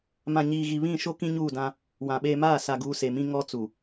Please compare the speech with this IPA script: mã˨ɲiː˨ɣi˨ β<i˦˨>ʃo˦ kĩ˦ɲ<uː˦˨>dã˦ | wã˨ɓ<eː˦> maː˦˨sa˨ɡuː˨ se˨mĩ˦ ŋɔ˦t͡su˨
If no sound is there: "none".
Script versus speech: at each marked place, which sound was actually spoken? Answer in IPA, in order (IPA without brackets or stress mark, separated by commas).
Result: ĩ˦˨, uː˦˨, eː˦